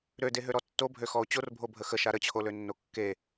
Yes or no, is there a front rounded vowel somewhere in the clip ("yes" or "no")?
yes